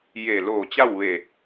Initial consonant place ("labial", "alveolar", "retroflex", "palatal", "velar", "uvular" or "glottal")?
palatal